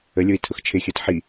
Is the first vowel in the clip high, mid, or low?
mid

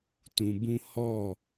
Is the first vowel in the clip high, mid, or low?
high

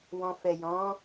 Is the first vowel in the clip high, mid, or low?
mid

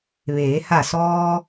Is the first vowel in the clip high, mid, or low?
mid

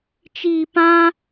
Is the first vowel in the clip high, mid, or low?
high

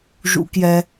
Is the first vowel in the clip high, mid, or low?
high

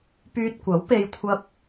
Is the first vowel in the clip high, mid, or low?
high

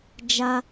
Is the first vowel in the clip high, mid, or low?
low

